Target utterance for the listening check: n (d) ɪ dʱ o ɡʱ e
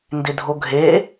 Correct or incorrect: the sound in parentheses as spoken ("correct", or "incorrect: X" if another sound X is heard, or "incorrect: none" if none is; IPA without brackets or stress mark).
correct